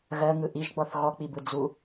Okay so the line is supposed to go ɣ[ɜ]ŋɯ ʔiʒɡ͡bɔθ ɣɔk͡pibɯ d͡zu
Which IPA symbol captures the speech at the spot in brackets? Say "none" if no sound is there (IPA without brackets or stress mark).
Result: ɜ